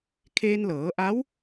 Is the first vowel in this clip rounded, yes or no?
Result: no